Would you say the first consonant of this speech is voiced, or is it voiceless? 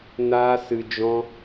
voiced